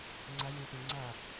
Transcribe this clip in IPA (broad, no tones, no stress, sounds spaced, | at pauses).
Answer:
ŋ͡ǀ ɐ j ĩ p ĩ ŋ͡ǀ ɐ